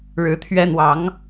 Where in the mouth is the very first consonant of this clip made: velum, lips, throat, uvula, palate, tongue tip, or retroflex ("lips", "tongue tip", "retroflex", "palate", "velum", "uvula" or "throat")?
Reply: retroflex